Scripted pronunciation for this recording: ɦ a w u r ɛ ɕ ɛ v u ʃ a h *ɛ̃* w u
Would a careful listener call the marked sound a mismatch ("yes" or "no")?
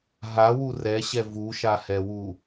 yes